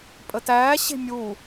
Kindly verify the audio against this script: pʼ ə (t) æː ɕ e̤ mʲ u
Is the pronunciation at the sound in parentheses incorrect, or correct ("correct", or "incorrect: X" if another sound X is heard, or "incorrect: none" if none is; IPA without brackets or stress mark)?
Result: correct